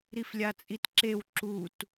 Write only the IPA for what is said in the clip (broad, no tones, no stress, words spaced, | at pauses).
ɾiflʲat͡sʼitǁew ǁut